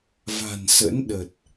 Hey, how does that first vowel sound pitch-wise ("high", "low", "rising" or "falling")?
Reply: low